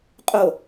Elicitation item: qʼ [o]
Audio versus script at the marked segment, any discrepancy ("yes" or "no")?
no